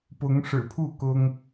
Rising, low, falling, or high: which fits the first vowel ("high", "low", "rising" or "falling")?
rising